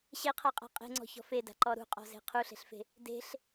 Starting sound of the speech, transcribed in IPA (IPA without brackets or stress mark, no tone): ɕ